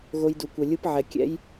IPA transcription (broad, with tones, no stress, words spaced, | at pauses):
ɣo˧jdu˨kʷɛ˨ lʲɯ˧pʕɛ˨ kʲɛ̰˧j